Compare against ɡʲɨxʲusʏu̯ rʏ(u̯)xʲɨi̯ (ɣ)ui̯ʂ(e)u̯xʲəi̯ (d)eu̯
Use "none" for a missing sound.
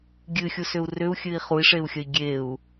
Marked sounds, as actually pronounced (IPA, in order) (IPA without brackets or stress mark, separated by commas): u̯, χ, e, ɡʲ